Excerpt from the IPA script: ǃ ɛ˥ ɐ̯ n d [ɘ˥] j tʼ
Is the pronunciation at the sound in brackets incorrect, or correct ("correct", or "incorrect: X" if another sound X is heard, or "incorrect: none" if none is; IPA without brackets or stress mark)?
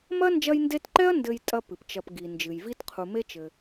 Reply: incorrect: ɘ˦